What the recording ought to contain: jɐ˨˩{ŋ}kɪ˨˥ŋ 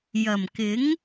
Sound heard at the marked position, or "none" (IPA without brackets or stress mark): m